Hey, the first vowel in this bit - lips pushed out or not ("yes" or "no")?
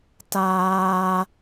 no